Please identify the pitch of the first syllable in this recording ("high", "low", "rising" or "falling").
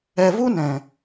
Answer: low